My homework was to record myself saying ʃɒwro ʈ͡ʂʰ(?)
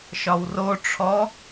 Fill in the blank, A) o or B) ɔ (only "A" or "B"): B